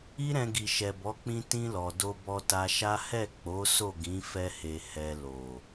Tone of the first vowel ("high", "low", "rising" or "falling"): high